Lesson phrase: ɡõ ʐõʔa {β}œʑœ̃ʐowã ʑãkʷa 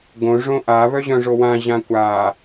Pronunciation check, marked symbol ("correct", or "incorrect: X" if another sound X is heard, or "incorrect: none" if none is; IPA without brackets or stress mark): correct